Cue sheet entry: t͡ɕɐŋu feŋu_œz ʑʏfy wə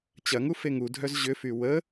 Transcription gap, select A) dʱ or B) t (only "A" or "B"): A